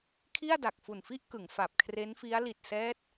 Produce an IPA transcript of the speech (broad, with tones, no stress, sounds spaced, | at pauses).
kʰ i˥˩ a̯ d a˨˩ k̚ f u˨˩ n f i˥˩ ʔ k ɯ˩˦ ŋ f a˨˩ p̚ kʰ r e˦˥ n f i˦˥ a̯ l i˨˩ t̚ s ɛː˦˥ t̚